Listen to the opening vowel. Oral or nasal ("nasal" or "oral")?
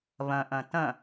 nasal